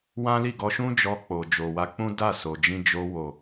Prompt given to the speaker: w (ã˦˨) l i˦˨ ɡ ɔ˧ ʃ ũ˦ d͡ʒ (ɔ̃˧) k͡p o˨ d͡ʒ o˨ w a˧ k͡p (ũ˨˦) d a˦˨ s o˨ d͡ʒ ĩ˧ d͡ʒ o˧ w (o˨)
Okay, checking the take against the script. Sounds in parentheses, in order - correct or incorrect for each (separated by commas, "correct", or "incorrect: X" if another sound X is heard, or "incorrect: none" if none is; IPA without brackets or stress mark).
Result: incorrect: ã˦, incorrect: ɔ˧, incorrect: ũ˦, correct